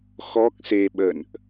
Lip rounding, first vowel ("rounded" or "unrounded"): rounded